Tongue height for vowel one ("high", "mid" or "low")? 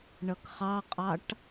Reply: mid